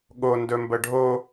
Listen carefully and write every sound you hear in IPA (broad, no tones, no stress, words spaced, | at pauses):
ɠo ndɵmbəɖʱo